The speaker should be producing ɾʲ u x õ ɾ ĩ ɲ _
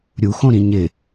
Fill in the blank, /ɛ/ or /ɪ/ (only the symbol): ɪ